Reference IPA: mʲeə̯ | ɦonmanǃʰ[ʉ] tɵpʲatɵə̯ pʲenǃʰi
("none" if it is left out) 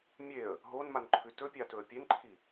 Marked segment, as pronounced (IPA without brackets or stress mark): ʉ